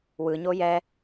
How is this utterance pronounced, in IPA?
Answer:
wɯɲo jɛ

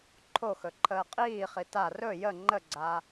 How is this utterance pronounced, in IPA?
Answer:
ǃʰoxɵ ǃʰəːqʼiːχi ta rɵ jə ŋ͡ǃəɡ͡ǀa

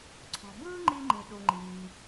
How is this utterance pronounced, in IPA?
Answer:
ǀʰɔ̤˩ bɯː˥ŋ͡ǃi˧ ŋ͡ǃĩ˩ɗu˩ ŋ͡ǃiː˩

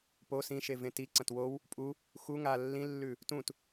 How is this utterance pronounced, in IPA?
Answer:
po sĩʃevẽ tiǀɐ̃t wow | pʼu | xu ŋa lːĩlːʉ | tũt

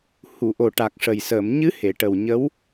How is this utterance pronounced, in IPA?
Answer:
hu˨˩˨ ʔo˨˩ʈa˨˩k̚ʂə˨˩jsəː˨˩˨m ɲɨ˧˥ he˨˩˨ʈə˨˩wɲə˧˥w

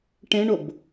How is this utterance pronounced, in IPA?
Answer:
ʈẽɳob

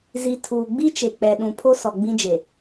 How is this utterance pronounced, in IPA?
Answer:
zi˨ tʰuː˨ɡ͡bi˦ t͡ʃe˨k͡pɛ˨ ɗũ˨pʰo˦ sɔ˨ɡ͡bĩ˦d͡ʒe˨

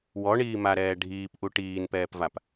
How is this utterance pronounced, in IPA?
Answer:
wɔɳiːmaɾɛː ɖʱiːpʔu ʈiːnpɛːpvap

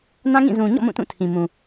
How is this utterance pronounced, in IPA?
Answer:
nã˦ŋĩ˦˨ zũ˨ɲɔ̰˦˨ mũ˦˨tũ˦˨tʰĩ˨ mũ˨

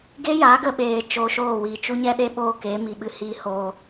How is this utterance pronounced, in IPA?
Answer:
ɡeː˦ja˨˦ɡə˧ ɓeː˨ t͡ʃoː˧ʃoː˦˨wiː˨ t͡ʃu˦ɲɛ˦ɗe˦ɓoː˦˨ ke˨˦mi˨ɓɨ˧ hi˧hoː˨

